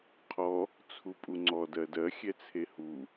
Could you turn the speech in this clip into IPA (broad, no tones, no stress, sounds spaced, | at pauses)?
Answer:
qʰ ɔ | t͡sʰ u pʼ u ŋ͡ǀ ɔ d ɜ d ɜ xʲ ɛ t͡sʰ e h u